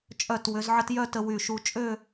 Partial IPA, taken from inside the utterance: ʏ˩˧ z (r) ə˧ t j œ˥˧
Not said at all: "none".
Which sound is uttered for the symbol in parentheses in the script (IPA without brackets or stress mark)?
ʕ